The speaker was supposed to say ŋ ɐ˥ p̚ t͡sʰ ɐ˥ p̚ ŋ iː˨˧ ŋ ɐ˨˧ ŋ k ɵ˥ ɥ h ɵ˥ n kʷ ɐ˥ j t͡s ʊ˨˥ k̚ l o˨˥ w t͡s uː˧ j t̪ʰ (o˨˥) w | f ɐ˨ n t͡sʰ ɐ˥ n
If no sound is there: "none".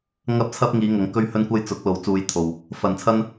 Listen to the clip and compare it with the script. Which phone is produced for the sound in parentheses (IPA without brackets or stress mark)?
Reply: o˨